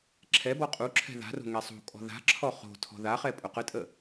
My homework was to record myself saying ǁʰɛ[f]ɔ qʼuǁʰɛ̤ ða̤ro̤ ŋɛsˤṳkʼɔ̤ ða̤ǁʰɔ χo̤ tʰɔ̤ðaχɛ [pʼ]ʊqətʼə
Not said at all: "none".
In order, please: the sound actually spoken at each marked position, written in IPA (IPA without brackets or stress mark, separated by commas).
b, pʼ